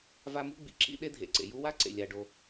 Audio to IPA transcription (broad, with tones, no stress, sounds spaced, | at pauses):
v a˦ m ṳ˥ ɡ͡b ḭ˩ ǁ ḭ˦ ɗ e˥ dʱ ḛ˩ ǀ ḛ˩ j u˦ w a˥ ǀ ḛ˩ lʲ a˩ ɖ o˩